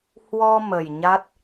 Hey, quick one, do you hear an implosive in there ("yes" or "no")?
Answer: no